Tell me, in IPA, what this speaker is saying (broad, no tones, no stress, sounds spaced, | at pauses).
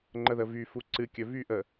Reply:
ŋ͡ǃ ə ð ə v y f u ǀ ɨ kʲ ɵ v y ʔ ə